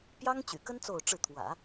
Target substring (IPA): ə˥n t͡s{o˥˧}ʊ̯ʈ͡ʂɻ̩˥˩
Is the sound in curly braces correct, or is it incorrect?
correct